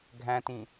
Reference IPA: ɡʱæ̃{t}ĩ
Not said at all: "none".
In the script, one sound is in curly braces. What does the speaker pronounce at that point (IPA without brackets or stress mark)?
t